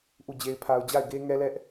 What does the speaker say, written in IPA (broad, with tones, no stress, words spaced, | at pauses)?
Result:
ʔu˦˨d͡ʑe˦ɪ̯pʰa˦ʊ̯ d͡ʑa˦˨ɪ̯ɡe˦ŋɛ˦lɛ˦ʔ